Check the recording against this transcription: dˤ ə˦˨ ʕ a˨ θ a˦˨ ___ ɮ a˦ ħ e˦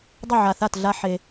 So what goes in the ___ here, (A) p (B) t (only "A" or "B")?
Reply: B